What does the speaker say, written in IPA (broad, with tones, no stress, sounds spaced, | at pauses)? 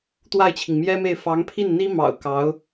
t̪ w a˥˩ ɪ̯ t͡ɕʰ i˩ ŋ m j ɛ˥ m e˥˩ ɪ̯ f ɑ˧˥ ŋ pʰ i˥˩ n n̪ i˥ m ɑ̰˨˩ ʊ̯ k ɑ˧˥ ʊ̯